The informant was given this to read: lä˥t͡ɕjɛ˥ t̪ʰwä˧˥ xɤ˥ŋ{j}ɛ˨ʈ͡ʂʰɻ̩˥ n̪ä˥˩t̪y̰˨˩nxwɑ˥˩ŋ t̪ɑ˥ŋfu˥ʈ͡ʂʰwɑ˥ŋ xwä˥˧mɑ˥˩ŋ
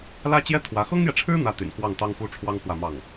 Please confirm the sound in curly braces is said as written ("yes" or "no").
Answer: yes